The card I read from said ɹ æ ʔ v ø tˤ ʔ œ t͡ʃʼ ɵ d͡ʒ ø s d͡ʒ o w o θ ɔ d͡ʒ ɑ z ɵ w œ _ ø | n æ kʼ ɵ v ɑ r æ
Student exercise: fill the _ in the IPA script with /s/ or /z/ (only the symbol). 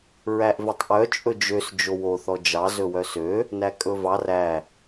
s